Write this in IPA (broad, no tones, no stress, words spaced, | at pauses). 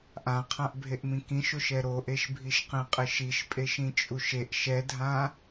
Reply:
ʔãqʰãʔbʱeʔmĩ kĩʃoʃɛ ɾoʔeʃbʱiʃqẽ qʼɪʃiʃpʼeʃ ĩt͡ʃʼuʃeʔ ʃɛdʱã